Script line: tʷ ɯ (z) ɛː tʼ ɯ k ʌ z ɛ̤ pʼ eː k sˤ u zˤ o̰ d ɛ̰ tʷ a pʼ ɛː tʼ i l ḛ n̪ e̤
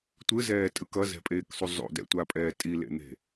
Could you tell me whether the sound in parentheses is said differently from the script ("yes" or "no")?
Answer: no